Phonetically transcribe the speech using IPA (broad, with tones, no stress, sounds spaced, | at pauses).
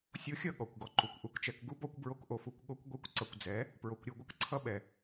sʲ o˧ xʲ ʌ˦˨ ɠ ɔ˨ kʷ ɡ ɔ˧ ǃ u˨ kʷ ʔ u˨ k t͡ʃ ɛ˨ k ɡ u˦ b ɔ˧ kʷ b ɹ o˧ k ʔ o˨ f u˧ kʷ ɠ o˦ kʷ ɡʷ ɛ˦ kʷ ǀ ʌ˨ kʷ d͡z ɛ˨˦ | p ɹ o˨ kʷ ɾʲ o˧ ɡʷ ʌ˧ k ǀʰ ʌ˦ ɓ ɛ˨